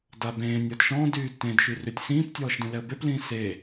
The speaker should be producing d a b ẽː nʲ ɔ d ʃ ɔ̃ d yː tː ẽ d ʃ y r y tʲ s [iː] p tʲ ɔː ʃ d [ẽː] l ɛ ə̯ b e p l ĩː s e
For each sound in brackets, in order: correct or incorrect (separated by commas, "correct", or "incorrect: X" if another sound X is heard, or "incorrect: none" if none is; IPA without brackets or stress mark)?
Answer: incorrect: ĩː, incorrect: ẽ